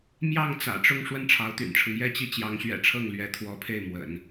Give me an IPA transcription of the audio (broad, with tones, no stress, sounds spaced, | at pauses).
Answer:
m j ɑ˥˩ ŋ t͡s ä̰˨˩ ʈ͡ʂ ʊ˥˧ ŋ ʂ w ə˥˩ n ʈ͡ʂʰ ɑ˧˥ ʊ̯ t̪ y̰˨˩ n ʈ͡ʂʰ ɤ˦ ŋ j ɛ˥˧ t͡ɕ i˥˩ t͡ɕ j ɑ˧˥ ŋ ɕ ɥ ɛ̰˨˩ ʈ͡ʂʰ ɤ˥˩ ŋ l ɥ ɛ˧˥ t̪ʰ w ɔ˧˥ pʰ e˥˩ ɪ̯ m w ə̰˨˩˦ n